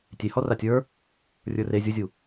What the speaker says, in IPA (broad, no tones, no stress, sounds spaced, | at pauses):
tʲ e h ɔ r a tʲ ə˞ | rʲ ə˞ r e zʲ u zʲ u